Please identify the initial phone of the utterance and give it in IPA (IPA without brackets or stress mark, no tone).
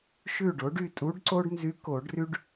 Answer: ʃ